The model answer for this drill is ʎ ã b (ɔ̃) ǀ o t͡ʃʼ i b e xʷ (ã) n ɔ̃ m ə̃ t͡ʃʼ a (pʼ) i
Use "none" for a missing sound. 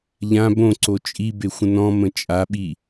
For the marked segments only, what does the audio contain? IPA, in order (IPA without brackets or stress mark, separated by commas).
õ, ə̃, ɓ